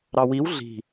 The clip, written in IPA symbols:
ɾɑwiw ɮi̤

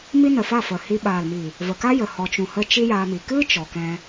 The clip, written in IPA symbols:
mi˦nə˨fa˦˨ fə˨hi˧ ɓaː˨lmi˨ | və˨ka˦ jə˨hɔ˨t͡ʃũ˨hə˧ t͡ʃi˦jaː˧mi˨ kɨ˦ t͡ʃɔ˨kɛ̃˧

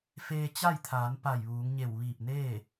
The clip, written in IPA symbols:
feː˧t͡ɕa˥˨jt̪ʰaː˩˧n pa˧˩jʋuː˩˧ŋɲe˧˩w ʋiː˧˩p̚neː˥˨

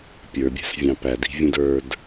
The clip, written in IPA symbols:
pʲə˞bʲæ̤svʲɑ̃ pædi̤vʲũd ə˞d

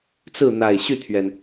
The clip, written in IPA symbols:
t͡sɹ̩˥˩n̪a˨˩ɪ̯ ɕy˥˩t̪ʰɥɛ˩n

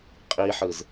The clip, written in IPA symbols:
qʼiħɯz

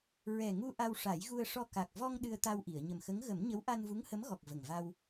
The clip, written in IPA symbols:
ɹɛ˨˩ŋu˧ ʔa˧wʂa˨˩˦jɣu˧ə̯ʂɔ˧ ka˨˩k̚ vɔ˧ŋ ɗɨ˧ə̯t̪a˧wʔi˨˩˨ə̯ ɲə˨˩mxə˧˥ŋ ɣə˨˩˦mɲə˧˥w ʔa˧nvu˧˥ŋhə˧˥mɣɔ˨˩k̚ və˨˩ŋva˧w

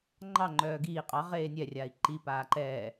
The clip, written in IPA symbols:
ŋ͡ǃɑ ŋ͡ǃœːɡiː qʼɑ ʁeːnʲɛ rʲai̯ǃi paːǃɛː

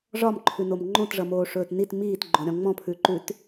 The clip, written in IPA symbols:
ʐɒmǃʰʉnom ŋ͡ǃõtʐʌmoːʂɵːt nit miːtɡ͡ǃõɾʲɔ̃ ŋ͡mɔ̃pʰʉǃʉt

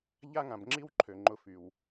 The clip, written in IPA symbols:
ʎa˦ŋã˨b ŋ͡ǁi˦w ǃʰø˨ŋ͡ǃʊ˧fy˨w

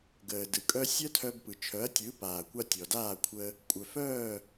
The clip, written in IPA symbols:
ɡəː˩dɯ˩kʼœ˥ sʲœ˥tʰœ˧bpɯ˩ t͡ʃʰœ˩˥ɐ̯tʲɯ˩˥ paː˩kʷa˧ tʲɔ˩daː˥˩kʷʰə˧ | kʷʼœ˩fœː˥˩

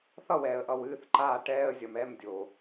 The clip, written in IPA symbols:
θʌ˥˨wɛ˧˩˧ə̯ʔʌ˨˩w ɨː˧˥˧θǃaː˥˨ ʈɛː˧˥˧ə̯zʲʌ˨˩mɛ˧˥˧mdʲo˨˩

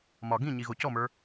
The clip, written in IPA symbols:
mɒ ɡĩ ɲiɣocɔmə˞

